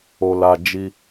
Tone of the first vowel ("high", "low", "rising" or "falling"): low